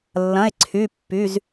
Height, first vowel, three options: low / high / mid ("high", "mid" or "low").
low